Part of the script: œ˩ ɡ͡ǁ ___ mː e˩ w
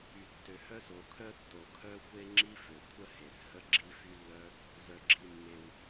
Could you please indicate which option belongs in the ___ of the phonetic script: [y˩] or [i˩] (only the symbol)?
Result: i˩